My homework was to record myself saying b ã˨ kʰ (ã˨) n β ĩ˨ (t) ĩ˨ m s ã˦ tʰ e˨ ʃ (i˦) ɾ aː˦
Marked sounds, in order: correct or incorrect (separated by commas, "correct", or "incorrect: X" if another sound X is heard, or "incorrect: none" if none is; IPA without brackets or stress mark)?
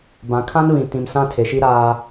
incorrect: ã˦, correct, correct